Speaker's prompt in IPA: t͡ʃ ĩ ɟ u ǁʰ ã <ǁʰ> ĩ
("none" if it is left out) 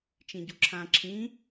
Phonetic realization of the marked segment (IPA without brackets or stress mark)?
ǁʰ